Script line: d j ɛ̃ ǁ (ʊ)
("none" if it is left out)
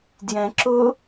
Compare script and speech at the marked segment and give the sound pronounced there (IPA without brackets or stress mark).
ʊ